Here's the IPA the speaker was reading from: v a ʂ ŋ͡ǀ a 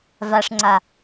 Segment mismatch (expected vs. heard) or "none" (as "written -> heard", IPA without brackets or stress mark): none